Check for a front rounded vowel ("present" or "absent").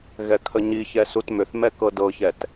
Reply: present